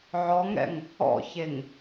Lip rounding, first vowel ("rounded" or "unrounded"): rounded